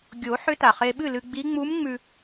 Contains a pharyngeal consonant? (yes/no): yes